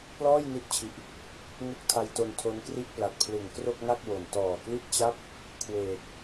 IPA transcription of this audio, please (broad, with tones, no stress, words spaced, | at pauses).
plɔː˥˩j ni˦˥t̚t͡ɕʰi˨˩ʔ | ŋu˦˥k̚tʰa˧j to˧ntʰo˦˥nkri˥˩ʔ pla˨˩t̚pʰlɯ˨˩ŋ kro˥˩k̚ŋa˥˩k̚ wo˨˩n tɔː˨˩kli˥˩t̚t͡ɕa˥˩p̚ | kʰweː˨˩k̚